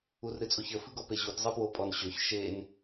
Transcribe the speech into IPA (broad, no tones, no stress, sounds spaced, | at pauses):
u r ɾ ɨ t͡sʼ o ç ə f ɨ ɡ ɔ p e ʑ u t zˤ ɨ p w o pʼ ɔ n ɕ ø ç ʃ e n